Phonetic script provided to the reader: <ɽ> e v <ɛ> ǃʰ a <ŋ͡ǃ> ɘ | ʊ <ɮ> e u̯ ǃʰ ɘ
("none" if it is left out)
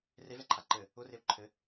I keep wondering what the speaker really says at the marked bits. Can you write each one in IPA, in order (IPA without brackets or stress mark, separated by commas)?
r, ɛ, ǃ, r